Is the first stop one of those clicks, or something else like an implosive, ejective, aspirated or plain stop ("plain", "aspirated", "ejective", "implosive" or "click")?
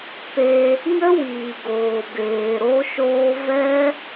plain